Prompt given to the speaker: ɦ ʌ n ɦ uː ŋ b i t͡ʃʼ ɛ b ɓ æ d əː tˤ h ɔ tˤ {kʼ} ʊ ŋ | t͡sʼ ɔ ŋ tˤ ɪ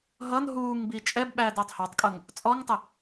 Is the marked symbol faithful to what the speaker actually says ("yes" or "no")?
yes